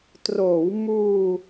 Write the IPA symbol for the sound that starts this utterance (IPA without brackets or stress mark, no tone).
t